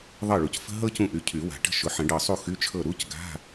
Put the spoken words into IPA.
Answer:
ðˤ ɤ˥˩ ɭ u˨˦ c f ə̤˥ ɦ ɤ˥ c ũ˥˩ ʔ y˨˦ cʰ y˨˩˦ w a̤˨˩˦ ʈ ə̤˥˩ ʃ ʊ˨˦ ħ ə̃˨˩˦ ɖ ɤ˧˩ sˤ u˥˩ x y˧˥˧ t͡ʃʰ ɤ˥˩ ɾ u˧˥˧ c ɡ a̤˧˥˧

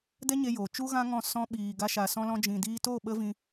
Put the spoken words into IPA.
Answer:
d ɛ˦ ɲ e˧ j oː˨ t͡ʃ u˦ ɣ ã˦ ŋ ɔ̃˦˨ s ɔ̃˧ ɓ iː˨ ɡ a˧ ʃ a˨ s ɔ̃˧ l ɔ̃˧ d͡ʒ ĩ˨ d iː˧ t o˦˨ ɓ ə˦ v ĩ˧

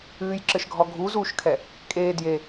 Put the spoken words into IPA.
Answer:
ɨː j ǁ ɘ ʃ ɡʱ ɔ ɡʱ u z uː ʃ kʰ ɛ | kʼ eː d j e

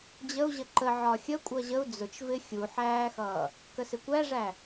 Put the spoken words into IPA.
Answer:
d͡ʑ ə u̯ ʑ ə ǃ ə ʕ ɒ xʲ ə kʷʼ ʌ ʑ ə u̯ d͡z ʊ t͡ʃ v ɪ xʲ u ħ æː x ʌː | k ə s ɪ kʷ æ ʐ æ

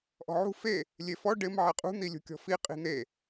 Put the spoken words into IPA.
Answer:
ʔ ɔ̤ ʕ ṳ f e | lʲ e f ɔ ɖ ɪ m ʕ ɛ qʼ ṳ n̪ i lʲ ṳ kʲ ɔ̤ f i qʼ i̤ n̪ e

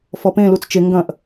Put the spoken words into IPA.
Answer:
f ɔ p ẽ l u t͡s t͡ʃ e ŋ ɡ ɐ̃ ʔ

